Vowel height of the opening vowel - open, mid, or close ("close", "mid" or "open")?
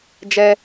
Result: mid